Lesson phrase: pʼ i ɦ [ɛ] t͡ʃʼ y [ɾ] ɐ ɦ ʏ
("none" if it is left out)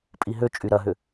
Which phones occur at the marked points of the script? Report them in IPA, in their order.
ø, ɾ

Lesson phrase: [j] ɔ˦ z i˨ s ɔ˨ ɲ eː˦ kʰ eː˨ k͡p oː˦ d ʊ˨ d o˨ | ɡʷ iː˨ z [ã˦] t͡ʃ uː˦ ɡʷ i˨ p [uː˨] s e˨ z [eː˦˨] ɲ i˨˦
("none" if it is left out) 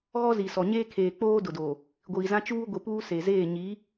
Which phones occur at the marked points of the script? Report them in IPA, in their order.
ɣ, ã˦, uː˦, eː˦˨

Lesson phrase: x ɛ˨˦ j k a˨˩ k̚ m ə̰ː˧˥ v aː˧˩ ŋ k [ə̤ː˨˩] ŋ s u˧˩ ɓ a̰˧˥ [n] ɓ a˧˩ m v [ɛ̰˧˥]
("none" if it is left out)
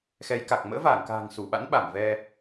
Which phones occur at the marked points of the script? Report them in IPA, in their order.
a̤ː˨˩, n, ɛ˧

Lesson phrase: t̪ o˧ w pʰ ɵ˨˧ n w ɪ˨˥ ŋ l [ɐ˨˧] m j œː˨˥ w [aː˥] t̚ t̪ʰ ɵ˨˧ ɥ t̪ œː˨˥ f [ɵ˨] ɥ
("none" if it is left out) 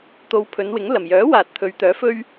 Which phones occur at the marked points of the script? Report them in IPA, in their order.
ɐ˨˩, aː˨, ɵ˥

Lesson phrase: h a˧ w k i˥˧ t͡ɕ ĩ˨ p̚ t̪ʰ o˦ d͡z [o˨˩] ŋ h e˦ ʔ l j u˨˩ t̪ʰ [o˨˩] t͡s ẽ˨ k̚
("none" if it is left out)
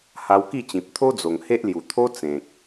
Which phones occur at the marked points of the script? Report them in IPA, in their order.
o˨˩, o˦

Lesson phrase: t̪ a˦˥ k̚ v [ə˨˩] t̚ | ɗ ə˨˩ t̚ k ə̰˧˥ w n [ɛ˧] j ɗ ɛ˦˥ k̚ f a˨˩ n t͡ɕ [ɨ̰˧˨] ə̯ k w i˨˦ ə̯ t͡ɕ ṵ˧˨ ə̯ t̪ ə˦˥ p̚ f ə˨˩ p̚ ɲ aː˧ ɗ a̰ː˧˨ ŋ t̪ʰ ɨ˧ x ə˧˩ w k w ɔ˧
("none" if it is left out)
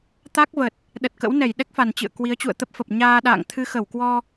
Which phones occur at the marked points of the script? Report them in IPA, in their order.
ə˨˩, ɛ˧˩, ɨ̰˧˨

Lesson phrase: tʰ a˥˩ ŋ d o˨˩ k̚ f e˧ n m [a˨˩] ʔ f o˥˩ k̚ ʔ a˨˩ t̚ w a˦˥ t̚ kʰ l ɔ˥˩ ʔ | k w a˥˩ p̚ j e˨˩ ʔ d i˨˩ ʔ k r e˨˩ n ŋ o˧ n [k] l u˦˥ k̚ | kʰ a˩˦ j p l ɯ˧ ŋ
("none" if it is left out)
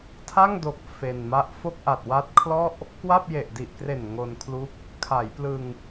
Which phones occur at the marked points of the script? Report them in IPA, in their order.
a˥˩, kʰ

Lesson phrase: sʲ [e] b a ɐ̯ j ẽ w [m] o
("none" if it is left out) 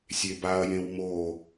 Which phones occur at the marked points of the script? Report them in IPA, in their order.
e, m

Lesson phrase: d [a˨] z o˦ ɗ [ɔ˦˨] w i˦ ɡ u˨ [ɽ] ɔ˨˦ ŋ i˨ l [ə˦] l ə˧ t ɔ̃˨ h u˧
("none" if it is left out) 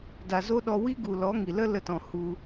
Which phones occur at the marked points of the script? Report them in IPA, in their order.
a˨, ɔ˧, l, ə˦

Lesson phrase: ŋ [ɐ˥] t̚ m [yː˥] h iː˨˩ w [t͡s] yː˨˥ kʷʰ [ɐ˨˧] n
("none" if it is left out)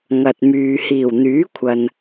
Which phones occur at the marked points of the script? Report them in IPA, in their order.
ɐ˨, yː˨, n̪, ɐ˨

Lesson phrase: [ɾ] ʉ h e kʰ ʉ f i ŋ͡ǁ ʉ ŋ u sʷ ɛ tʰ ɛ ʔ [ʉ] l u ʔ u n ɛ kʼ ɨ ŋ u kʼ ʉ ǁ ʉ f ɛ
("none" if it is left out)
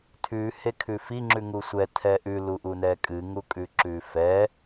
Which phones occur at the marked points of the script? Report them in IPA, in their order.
tʰ, ʉ

